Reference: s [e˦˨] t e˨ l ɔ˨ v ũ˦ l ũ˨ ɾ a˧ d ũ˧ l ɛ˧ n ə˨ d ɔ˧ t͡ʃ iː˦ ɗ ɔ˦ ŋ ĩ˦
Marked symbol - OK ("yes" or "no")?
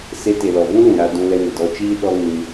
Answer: no